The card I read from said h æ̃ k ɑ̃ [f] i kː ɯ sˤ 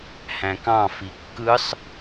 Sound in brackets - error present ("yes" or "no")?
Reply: no